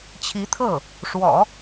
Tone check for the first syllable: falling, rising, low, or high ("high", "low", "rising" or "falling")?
rising